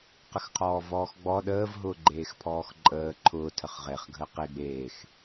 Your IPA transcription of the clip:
q ə x qʰ ɔː v ɔː x ɡ͡b ɔ ɗ əː v ɦ ʊː ɡ͡ǃ eː x pʰ ɔː x ǃʼ əː ǃʰ ʊː tʰ ə χ ʁ e χ ɡʱ əː q e ɡ͡b eː x

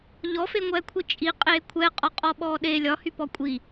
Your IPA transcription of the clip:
ʎ ɔ f e ŋʷ ɛː kʷʰ i t͡ʃʼ i qʼ eː kʷʰ ɛ qʼ ɒ qʼ ɔ ɓ ɔː ɗ e lʲ ɒ h y p ɔ kʷʼ i

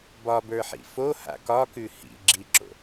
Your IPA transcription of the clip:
b ɒ b ə˞ ħ ḭ f o h a̰ k ɒ k ʉ h ḭ ɡ͡ǁ i ǁ o̰

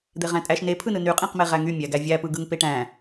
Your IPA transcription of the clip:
d̪ e ʁ æ̃ tʼ æ ʃ n e pʰ ɯ n ɯ n y qʼ ĩ q m e ʁ æ ŋ y mʲ æ ɡ æ vʲ æ p ɯ ɡ ɯ ŋ p e ʈ æ̃

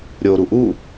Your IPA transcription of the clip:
ɾʲ o ɾ u ʔ u

